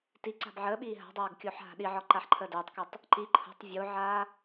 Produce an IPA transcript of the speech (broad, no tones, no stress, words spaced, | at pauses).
tiǀa̤b ʕəːɓiː ɦa̤dˤaːɡ kʲoːħɦa̤ɗiʕɒ ǃaħǃʰəːdəːtˤkotˤ | ǃi ǃʰə̤tˤ vʲoʕaː